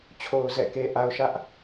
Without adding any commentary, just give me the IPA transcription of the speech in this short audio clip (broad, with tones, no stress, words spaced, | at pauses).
t͡ɕʰo˨ʊ̯ zɛ̰˦˨ke˦ʔa˦ʊ̯ ʃä˦ʔ